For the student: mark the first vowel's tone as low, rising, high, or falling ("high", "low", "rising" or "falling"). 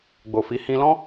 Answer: low